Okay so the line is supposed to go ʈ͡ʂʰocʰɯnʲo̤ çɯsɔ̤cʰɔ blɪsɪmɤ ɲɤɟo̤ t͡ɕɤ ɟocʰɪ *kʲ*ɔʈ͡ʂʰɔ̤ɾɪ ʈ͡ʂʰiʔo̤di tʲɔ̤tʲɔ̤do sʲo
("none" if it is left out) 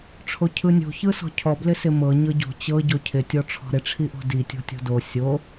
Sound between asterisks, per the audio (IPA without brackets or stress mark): tʲ